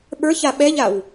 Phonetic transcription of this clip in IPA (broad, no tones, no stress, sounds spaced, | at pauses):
ɓ ə˞ ç a ɓ ɛ ʎ a w